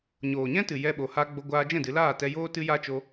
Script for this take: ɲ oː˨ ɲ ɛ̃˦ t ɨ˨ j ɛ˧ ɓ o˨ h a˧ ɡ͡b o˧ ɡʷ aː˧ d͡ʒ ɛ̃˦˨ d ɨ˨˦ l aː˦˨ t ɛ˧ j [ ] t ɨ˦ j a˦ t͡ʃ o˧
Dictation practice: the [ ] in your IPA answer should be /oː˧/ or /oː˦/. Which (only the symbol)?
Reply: oː˦